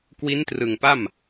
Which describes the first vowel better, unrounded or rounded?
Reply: unrounded